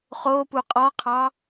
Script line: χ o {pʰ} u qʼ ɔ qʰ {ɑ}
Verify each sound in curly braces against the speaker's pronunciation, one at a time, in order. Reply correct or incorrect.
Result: incorrect, correct

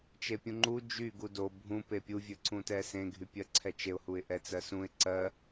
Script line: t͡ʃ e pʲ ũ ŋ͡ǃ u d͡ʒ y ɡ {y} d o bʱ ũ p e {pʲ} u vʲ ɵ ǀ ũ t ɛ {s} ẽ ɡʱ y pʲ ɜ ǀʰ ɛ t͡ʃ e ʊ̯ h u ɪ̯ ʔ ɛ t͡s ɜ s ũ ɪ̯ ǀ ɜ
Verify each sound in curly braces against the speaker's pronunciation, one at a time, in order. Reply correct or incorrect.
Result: incorrect, correct, correct

